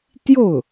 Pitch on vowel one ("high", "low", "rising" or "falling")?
falling